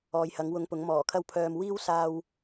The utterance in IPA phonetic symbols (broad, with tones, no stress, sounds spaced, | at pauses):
ɔː˨˧ j h ɐ˨˥ ŋ w ʊ˧ ŋ p ʊ˨˥ ŋ m ɔː˨˩ kʰ ɐ˥ w pʰ œː˧ m w iː˥ w s aː˧ w